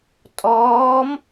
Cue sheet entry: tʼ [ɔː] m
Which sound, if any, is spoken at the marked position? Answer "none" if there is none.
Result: ɔː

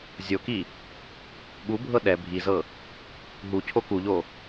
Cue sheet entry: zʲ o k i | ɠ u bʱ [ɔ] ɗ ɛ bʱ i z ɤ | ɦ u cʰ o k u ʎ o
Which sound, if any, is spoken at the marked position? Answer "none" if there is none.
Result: ɤ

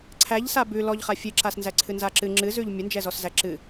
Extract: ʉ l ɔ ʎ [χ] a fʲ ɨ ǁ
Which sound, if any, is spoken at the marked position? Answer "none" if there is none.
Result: χ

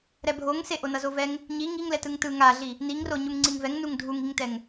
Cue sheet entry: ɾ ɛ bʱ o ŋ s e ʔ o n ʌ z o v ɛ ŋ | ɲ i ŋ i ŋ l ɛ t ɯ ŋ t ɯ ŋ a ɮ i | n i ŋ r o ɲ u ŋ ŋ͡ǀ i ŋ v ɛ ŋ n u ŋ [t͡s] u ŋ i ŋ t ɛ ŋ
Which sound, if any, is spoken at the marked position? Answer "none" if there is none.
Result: dʱ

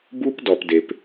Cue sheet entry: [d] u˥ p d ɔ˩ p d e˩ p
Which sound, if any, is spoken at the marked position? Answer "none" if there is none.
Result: b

